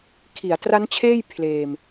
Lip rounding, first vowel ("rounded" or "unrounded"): unrounded